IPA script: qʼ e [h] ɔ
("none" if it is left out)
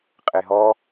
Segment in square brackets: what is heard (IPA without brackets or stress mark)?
ɦ